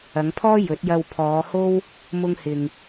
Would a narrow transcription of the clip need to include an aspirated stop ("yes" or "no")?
yes